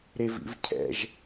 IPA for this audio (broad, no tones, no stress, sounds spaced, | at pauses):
ɾ e v ḭ v cʰ ɛ̰ ʒ